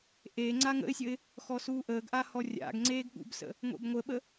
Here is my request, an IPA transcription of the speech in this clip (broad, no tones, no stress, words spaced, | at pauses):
ʔeŋ͡ǀa ŋə̰ɪ̯sʲəɪ̯ | xɔsuːʔəːɡʔa hɔrʲa̰ɡŋ͡ǀeːɡ ɠṵbsə̰ | ŋʷḛbŋʷəɓə